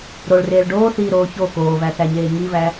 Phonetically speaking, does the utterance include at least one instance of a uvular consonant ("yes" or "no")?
no